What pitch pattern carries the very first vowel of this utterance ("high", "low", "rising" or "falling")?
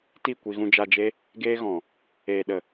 falling